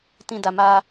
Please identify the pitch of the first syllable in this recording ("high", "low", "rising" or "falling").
low